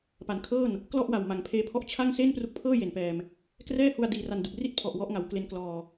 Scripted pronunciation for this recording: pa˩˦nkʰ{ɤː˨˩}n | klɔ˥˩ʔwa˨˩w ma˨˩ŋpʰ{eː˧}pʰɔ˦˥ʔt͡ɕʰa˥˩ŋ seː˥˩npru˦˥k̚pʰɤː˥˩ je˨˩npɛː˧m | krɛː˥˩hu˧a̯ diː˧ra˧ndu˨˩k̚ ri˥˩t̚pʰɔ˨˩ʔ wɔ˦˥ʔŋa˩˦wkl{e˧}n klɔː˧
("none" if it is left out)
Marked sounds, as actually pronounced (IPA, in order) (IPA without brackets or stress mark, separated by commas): ɤː˥˩, eː˧, e˧